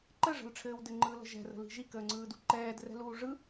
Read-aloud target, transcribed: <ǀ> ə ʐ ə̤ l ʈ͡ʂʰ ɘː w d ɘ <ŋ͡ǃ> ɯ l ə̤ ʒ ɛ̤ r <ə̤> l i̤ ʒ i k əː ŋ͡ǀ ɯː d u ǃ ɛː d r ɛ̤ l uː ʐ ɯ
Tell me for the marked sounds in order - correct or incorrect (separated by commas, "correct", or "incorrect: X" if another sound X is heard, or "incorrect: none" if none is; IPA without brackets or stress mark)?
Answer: incorrect: ǃ, correct, correct